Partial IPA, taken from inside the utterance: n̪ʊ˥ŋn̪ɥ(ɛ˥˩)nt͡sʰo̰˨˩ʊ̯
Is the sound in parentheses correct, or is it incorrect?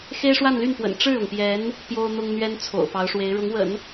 incorrect